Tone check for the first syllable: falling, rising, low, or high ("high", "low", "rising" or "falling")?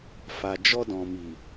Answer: low